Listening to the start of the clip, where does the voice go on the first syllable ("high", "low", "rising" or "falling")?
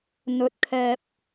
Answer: rising